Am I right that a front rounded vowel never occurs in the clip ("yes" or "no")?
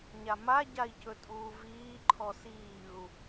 yes